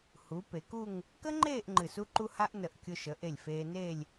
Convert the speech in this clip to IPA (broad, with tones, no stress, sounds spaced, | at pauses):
h u˩˧ p e˩˧ k u˥˧ ŋ | k ə˥ ŋ͡ǃ eː˥˧ ʔ ŋ͡ǃ ɨ˧˩ s u˥ ǃ u˥ h a˥ ʔ n ə˧˩ ʔ kʲ ʊ˧ ʃ ə˩˧ ʔ e˧˩ lʲ f eː˧ n eː˥˧ lʲ